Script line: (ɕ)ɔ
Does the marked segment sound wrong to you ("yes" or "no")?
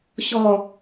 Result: no